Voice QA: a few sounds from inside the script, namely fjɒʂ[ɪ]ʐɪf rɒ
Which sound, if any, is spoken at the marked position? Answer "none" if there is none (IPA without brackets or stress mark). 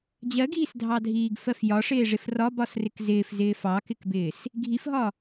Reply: ɪː